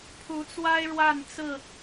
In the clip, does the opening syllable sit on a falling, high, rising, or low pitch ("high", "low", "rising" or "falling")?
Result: rising